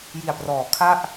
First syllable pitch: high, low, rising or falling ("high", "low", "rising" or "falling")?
low